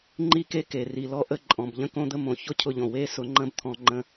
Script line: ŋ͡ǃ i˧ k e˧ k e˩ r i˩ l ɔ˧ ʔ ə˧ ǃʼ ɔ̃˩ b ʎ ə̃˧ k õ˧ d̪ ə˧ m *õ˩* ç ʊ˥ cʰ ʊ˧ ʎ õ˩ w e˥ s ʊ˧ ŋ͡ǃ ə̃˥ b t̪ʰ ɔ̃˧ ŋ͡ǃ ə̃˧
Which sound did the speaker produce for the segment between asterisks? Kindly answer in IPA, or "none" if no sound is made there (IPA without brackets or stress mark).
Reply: õ˩